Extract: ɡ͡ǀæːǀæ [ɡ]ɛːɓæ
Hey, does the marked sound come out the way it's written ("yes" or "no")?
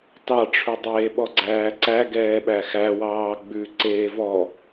yes